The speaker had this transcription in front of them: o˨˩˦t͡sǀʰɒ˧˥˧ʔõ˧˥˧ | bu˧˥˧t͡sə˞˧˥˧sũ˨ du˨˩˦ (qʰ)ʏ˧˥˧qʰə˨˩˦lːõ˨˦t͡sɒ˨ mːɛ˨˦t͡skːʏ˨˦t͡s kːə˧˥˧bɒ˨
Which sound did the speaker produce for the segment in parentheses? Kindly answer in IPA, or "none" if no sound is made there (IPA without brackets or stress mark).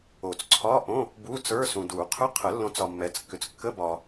qʰ